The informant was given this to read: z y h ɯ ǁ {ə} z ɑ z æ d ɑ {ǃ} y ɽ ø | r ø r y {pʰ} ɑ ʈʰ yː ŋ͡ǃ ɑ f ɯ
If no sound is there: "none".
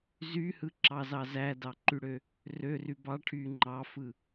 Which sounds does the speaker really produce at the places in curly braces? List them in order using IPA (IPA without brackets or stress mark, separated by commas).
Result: ɑ, ǃ, b